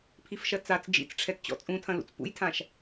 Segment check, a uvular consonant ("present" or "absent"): absent